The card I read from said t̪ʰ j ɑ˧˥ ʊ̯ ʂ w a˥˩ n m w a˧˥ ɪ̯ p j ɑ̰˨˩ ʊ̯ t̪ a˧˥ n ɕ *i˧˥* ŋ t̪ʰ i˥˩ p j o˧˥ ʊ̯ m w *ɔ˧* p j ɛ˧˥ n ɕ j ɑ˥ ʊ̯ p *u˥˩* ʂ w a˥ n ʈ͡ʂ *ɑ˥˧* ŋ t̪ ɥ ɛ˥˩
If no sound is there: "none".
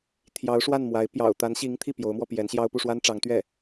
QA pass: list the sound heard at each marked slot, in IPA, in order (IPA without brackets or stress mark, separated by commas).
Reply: i˧˥, ɔ˧, u˥˩, ɑ˧˥